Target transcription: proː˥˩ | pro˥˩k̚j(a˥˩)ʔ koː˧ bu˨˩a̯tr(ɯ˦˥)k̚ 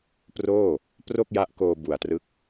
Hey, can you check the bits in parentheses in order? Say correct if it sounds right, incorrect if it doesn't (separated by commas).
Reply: incorrect, correct